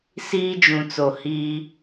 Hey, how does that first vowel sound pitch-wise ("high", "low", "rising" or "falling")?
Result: high